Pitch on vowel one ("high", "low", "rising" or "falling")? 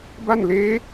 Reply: falling